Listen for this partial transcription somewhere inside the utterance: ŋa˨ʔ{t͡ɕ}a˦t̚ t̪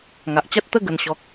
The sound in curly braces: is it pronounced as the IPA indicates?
yes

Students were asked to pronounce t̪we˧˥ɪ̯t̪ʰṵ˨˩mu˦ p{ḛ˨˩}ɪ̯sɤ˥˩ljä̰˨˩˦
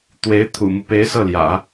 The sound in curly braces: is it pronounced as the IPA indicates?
no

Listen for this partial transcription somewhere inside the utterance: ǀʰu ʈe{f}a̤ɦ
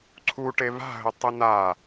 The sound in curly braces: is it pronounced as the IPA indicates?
no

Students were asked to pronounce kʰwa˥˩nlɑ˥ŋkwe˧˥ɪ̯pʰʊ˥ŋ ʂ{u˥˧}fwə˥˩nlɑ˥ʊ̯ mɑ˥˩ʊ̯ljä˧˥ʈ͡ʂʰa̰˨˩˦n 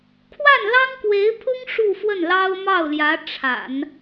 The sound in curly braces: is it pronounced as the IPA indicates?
yes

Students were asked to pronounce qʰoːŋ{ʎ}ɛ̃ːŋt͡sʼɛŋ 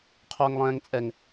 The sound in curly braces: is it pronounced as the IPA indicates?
no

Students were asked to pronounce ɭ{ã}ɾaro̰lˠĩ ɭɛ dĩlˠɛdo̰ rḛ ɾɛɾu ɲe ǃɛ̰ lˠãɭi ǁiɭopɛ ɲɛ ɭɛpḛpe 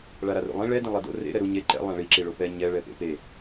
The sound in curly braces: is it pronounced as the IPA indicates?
no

